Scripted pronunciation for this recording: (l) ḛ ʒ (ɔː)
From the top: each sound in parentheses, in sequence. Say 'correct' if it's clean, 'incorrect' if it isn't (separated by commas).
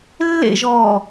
incorrect, correct